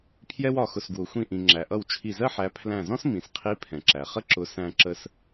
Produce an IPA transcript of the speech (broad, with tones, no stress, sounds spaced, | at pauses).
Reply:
pʰ j ɛ˥ w ɒ˧˩ x ʊ˧˩ s ɡ w ʊ˩ xʷ ĩ˧˩ ʔ ĩ˩ ŋ͡ǁ æ˩ ʔ ʌ˧˩ w t͡ʃʰ i˧˩ z ɜ˥ ħ æ˨˦ pʰ l æ̃˧˩ z ɔ̃˥ s m ĩ˩ s qʰ i˨˦ pʰ ɛ̃˩ ǁ æ˩ χ ə˥ ǁ ʊ˨˦ s æ̃˥ ǁ ə˥ s